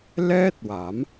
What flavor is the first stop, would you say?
plain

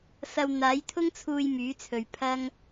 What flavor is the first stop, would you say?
aspirated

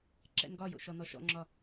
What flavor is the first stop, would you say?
click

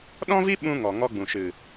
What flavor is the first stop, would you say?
implosive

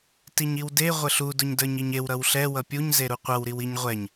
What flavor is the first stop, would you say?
plain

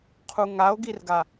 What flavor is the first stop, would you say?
aspirated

